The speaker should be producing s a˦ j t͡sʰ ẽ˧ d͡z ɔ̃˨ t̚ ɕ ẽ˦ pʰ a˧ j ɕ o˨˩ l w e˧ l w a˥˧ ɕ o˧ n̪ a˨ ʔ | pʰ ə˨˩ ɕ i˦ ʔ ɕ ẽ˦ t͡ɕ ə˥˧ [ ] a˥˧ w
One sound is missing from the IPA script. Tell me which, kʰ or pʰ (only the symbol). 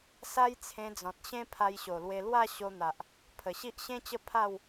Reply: pʰ